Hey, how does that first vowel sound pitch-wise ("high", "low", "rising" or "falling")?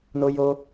high